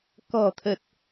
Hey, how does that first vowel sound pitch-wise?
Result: low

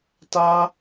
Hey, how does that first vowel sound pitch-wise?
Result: high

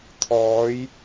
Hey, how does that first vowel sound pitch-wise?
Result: rising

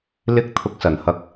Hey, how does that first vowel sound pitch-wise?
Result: high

